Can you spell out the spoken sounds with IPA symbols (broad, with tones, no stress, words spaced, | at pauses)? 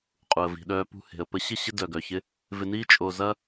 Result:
qʼu˨ə̯vi̤˨ɗœː˧ pṳ˧he̤˨ə̯pə˧ ɕɪ˦˨ ɕɪ˦ dœ˨ɡœ˨çɪ˧ | vɪ˧niː˦ t͡ʃʼo˧zɐ˦